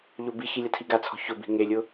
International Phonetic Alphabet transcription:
ʎobiçi lʲatʰiɡat͡sʰɔ̤ çʊbi̤ ŋelʲʊ

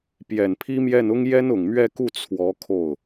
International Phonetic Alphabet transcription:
pjɛ˨˩npʰi˥mjɛ˥˩n ʊ˥ŋ jɛ˥nʊ˨˩ŋmɥɛ˥˧ku˥˩ t͡sʰwɔ˧˥ kʰo˥˩ʊ̯

